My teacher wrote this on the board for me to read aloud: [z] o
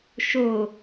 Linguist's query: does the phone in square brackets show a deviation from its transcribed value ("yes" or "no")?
yes